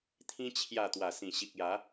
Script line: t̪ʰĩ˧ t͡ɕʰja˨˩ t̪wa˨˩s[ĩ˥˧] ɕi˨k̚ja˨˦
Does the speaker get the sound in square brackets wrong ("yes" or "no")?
yes